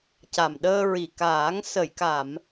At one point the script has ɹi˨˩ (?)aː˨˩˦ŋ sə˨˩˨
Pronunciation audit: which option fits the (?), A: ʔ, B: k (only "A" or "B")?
B